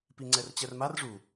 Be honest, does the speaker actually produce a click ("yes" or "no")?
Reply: yes